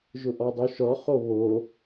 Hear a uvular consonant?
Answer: yes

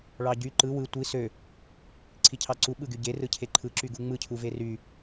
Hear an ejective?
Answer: no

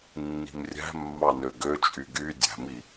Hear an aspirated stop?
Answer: no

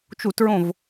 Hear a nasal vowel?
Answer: yes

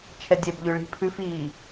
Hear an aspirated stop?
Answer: yes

